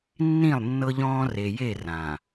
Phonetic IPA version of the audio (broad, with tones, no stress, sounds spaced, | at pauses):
nː ĩ˦˨ lˠ nː ɤ˦ ʎ ɔ̃ː˦ r e˨ j e˦˨ r ãː˨